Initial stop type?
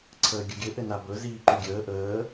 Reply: click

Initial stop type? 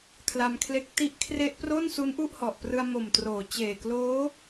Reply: aspirated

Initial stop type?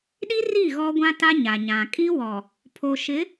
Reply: implosive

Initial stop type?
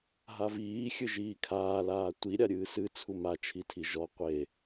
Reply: aspirated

